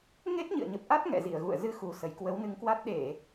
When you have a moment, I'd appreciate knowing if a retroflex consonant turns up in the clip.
no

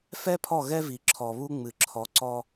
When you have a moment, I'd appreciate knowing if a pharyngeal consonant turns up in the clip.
no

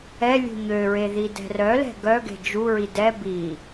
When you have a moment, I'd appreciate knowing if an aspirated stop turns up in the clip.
no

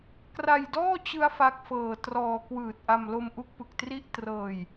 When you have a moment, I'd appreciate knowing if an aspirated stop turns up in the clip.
no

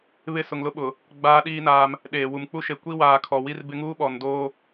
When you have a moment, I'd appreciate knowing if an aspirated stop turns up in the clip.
yes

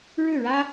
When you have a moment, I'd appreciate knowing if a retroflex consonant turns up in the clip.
yes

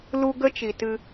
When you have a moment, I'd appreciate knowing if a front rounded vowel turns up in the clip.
no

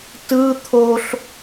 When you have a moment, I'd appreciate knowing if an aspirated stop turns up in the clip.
yes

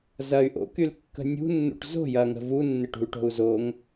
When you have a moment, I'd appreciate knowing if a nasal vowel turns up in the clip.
no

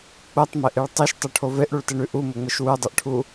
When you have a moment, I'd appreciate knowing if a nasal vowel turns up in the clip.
no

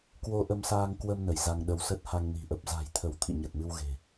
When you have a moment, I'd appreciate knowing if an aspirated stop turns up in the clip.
yes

